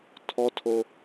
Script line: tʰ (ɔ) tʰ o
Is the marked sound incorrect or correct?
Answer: correct